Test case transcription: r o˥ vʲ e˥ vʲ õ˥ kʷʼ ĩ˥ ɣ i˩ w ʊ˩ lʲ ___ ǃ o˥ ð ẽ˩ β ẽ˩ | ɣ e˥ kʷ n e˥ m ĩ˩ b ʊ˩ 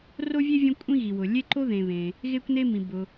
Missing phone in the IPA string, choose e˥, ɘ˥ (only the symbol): e˥